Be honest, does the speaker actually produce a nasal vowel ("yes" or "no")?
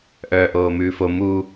no